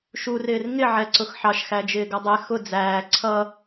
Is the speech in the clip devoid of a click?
no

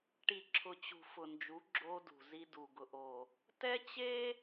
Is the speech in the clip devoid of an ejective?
yes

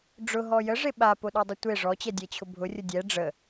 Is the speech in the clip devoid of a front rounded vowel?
yes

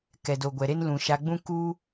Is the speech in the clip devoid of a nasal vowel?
no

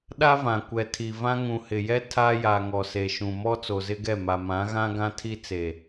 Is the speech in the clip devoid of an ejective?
yes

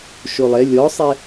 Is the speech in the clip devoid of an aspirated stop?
yes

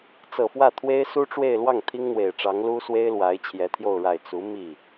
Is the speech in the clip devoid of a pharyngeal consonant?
yes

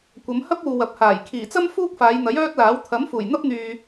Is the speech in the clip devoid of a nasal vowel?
yes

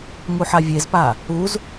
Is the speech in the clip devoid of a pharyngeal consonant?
no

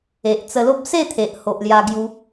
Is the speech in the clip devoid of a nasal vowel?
yes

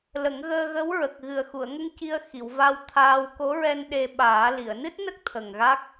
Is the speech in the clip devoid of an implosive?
no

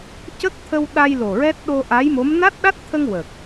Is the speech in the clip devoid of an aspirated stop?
no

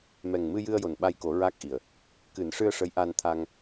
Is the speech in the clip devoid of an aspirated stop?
no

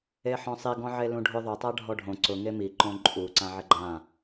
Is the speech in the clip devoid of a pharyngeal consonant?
no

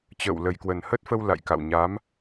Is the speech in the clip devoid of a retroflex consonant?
yes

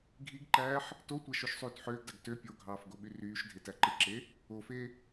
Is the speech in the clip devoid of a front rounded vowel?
no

